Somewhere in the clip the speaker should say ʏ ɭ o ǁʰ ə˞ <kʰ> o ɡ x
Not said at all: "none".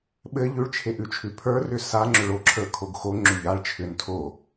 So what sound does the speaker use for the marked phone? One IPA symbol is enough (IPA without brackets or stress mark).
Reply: kʰ